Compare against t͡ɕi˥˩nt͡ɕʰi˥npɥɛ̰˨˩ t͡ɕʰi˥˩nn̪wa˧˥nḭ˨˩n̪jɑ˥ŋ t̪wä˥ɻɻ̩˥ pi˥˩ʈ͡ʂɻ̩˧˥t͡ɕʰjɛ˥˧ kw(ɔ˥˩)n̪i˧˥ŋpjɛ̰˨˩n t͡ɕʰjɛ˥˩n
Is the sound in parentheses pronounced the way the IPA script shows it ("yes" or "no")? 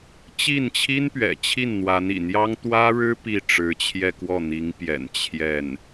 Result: yes